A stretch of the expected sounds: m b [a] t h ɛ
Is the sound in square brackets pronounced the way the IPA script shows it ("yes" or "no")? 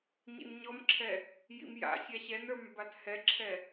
yes